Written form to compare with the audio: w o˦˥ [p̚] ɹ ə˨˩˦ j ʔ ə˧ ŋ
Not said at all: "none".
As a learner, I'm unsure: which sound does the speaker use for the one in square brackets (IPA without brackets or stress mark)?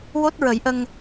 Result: t̚